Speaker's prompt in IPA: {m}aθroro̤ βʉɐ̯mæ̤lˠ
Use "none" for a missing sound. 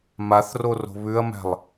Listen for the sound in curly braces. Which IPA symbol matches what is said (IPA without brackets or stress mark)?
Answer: m